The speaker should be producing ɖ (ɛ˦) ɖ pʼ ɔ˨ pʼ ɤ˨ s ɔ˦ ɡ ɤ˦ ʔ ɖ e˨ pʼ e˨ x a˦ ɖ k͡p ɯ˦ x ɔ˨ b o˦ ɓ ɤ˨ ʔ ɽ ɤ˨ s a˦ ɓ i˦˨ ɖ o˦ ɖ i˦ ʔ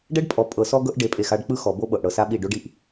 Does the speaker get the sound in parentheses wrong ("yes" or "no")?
no